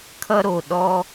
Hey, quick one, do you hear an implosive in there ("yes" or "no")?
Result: yes